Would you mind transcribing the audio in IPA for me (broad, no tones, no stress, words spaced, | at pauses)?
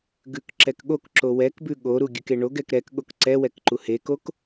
ɡʉkǁɛkɠokǁo wɛkbʉ ɠoɾu ɡʲʉkeɳoɡɛk ɾɛkɠok ǀɛ wɛkǃuhekok